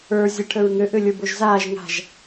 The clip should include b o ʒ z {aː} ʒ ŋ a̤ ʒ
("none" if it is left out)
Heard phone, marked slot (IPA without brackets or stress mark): aː